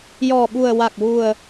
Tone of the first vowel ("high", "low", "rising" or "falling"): low